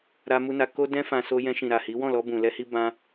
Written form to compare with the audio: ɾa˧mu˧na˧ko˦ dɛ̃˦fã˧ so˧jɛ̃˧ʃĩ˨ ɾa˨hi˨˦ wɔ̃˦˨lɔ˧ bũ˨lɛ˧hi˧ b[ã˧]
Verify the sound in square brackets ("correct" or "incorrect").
correct